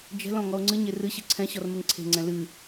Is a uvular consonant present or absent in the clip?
absent